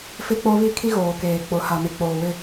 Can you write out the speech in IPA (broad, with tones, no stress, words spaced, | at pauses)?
fɪ˦k͡po˦ βi˦kʰi˦ɣoː˨ keː˨k͡pʊ˨ ha˨me˨k͡poː˨wɪ˦˨